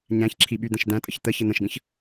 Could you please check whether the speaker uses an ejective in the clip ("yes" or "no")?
yes